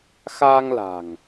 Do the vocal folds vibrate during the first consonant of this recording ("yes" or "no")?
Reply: no